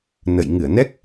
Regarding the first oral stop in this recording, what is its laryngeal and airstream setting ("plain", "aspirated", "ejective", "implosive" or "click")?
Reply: plain